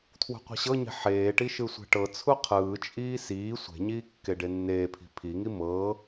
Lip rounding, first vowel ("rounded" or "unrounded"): rounded